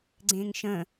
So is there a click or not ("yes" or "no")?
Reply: yes